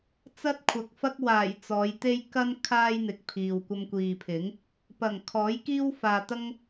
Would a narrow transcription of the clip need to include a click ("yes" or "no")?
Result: no